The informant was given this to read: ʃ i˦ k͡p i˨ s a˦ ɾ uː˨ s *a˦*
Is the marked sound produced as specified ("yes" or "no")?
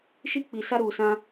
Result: no